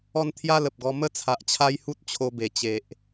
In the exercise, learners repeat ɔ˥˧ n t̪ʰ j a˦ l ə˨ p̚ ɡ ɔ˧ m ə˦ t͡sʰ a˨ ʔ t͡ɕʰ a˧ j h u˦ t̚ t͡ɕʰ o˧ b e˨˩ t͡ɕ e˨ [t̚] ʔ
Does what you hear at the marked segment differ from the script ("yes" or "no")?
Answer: yes